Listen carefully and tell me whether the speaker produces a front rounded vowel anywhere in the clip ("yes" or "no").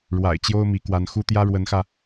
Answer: no